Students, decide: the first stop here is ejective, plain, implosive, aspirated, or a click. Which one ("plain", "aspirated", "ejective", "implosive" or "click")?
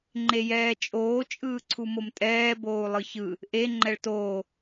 click